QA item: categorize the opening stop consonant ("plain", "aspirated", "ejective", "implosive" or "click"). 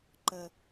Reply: click